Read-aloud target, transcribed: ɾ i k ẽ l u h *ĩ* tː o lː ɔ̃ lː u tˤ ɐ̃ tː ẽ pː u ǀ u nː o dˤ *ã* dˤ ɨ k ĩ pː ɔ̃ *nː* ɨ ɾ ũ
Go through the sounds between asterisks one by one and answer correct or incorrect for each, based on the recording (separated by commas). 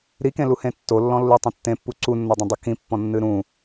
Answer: incorrect, incorrect, correct